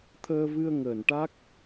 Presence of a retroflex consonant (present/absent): present